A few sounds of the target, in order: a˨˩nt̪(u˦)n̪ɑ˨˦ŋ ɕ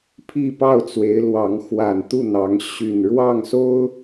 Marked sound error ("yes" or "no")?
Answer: yes